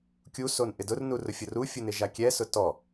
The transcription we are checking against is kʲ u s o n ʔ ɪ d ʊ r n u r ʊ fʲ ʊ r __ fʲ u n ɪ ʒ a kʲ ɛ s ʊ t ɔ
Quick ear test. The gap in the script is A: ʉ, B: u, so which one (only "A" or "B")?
B